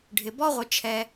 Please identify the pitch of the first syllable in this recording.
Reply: low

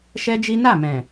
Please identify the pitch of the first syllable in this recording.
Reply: high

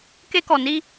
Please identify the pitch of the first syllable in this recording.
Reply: high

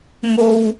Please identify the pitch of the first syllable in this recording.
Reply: high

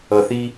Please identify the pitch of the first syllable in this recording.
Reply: low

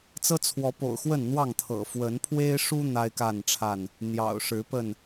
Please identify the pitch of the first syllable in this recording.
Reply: high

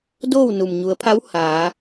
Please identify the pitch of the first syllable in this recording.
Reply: falling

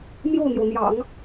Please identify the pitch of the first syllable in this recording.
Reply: falling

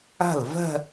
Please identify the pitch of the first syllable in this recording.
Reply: falling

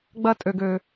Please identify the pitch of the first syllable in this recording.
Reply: high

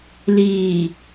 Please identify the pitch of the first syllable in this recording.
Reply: low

